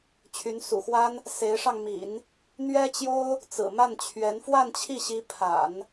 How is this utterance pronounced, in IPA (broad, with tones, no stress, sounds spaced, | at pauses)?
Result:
t͡ɕʰ y˧˥ n s ṵ˨˩ x w a˥ n | s e˧˥ ɪ̯ ʂ ɑ˧ ŋ m ḭ˨˩˦ n | n̪ ɥ ɛ˥ t͡ɕ j o˥ ʊ̯ | t͡s ɹ̩˨˩ m a˥˩ n t͡ɕʰ ɥ ɛ˧˥ n f w a˥˧ n t͡ɕʰ i˥˩ ɕ i˧˥ pʰ a̰˨˩˦ n